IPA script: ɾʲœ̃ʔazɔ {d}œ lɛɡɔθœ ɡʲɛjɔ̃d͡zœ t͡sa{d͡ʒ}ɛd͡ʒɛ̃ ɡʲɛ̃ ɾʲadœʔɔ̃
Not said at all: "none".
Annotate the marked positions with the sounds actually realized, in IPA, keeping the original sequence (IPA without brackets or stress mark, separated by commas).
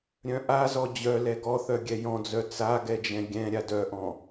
d͡ʑ, ɡ